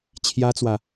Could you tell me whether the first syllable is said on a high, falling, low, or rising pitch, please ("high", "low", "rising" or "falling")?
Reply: high